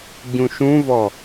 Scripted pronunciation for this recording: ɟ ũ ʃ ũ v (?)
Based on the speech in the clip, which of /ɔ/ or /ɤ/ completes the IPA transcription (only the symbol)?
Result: ɔ